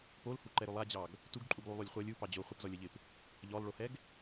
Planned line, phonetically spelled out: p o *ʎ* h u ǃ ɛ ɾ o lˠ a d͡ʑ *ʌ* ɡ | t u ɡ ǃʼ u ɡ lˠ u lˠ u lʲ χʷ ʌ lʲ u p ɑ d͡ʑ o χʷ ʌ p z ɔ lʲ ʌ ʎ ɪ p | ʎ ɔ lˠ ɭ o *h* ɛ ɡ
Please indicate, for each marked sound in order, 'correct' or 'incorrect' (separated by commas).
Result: incorrect, incorrect, correct